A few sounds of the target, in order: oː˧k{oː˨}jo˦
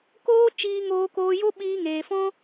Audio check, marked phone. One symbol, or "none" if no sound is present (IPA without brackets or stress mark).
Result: oː˧